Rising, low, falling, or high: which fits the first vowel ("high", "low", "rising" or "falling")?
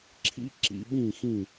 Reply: high